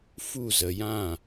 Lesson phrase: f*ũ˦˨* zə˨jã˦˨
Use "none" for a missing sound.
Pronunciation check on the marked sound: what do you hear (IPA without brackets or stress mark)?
u˦˨